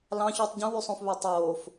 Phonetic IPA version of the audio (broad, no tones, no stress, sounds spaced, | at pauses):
l ɑ̃ ç u tˤ ɟ ũ w y sˤ õ f β ø tˤ oː f